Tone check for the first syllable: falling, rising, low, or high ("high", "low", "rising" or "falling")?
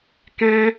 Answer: high